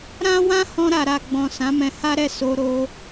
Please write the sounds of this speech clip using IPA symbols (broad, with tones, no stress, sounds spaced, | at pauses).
ɾ ã˦ w ã˦ h ɔ̃˧ ɾ a˨ ɾ a˨ ɡ͡b ɔ̃˨ s ã˨˦ m ɛ̃˧ h a˦ ɾ ɛ˦˨ s o˧ ɾ o˧